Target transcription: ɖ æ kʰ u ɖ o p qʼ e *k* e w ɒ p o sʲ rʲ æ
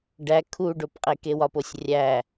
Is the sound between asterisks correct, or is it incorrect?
correct